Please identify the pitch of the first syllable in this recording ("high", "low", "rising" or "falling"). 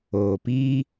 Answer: low